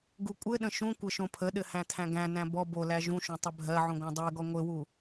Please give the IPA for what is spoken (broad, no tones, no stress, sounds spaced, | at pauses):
ɡ u kʷʼ ɘ ɗ ə̃ ʃ ũ kʷ ɘ ʃ õ pʰ ə ɗ ɘ h æ̃ tʰ æ̃ ɡ æ̃ n æ̃ b ɔ b o l æ ʒ ũ ʃ õ tˤ ɘ bʱ ɜ ʕ ũ ɡʷ æ̃ dˤ ɜ ɡ ɔ ŋʷ ɘ w u